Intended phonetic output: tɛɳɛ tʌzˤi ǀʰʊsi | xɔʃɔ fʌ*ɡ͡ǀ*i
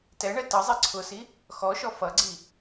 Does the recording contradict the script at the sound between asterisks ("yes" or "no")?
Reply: no